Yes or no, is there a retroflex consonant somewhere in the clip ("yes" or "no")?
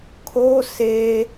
no